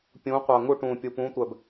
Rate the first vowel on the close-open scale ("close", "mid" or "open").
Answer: close